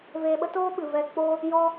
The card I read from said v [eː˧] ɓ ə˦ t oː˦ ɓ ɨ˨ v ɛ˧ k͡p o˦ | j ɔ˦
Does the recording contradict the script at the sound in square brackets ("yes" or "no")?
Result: no